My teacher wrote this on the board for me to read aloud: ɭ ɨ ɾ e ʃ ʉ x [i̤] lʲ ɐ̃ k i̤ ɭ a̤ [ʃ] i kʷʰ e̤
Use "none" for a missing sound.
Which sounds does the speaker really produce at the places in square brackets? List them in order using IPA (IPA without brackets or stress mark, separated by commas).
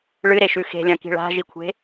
e̤, ʒ